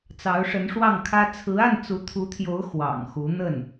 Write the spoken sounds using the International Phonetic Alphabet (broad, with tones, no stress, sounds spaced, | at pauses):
t͡s ɑ˧˥ ʊ̯ ʂ ə˧˥ n ʂ w ɑ˥˩ ŋ kʰ ä˥ t͡sʰ ɹ̩˧˥ a˥˩ n t͡s u˧˥ t̪ʰ u˧˥ t̪ʰ j o˧˥ ʊ̯ x w ɑ̰˨˩ ŋ x u˧˥ n̪ ə˥˩ n